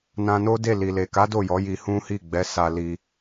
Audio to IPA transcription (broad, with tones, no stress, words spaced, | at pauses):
nã˧no˦de˦˨li˨ le˨ka˨˦ do˦˨jɔ˨˦ ji˧hũ˦hi˦˨ ɡ͡bɛ˨˦sa˧li˧